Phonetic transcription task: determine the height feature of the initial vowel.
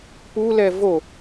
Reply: high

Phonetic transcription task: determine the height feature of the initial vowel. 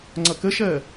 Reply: mid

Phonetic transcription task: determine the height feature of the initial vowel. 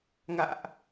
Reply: low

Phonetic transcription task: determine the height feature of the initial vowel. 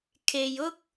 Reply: mid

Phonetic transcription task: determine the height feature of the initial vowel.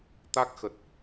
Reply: low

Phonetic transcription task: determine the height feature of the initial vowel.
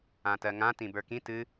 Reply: low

